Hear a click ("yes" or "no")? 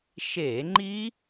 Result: yes